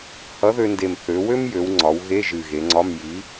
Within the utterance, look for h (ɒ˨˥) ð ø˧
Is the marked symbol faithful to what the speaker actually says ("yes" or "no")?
no